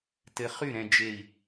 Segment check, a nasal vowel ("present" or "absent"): present